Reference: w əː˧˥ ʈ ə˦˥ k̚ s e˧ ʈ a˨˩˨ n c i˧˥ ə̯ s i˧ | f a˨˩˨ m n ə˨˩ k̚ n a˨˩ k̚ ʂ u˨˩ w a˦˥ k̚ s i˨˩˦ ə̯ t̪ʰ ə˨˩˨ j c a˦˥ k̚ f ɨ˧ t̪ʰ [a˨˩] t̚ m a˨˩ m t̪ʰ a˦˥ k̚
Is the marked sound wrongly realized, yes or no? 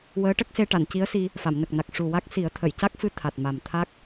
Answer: no